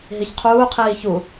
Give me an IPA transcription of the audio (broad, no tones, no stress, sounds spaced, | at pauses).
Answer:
ɦ i ç qʰ uː qʰ iː ç u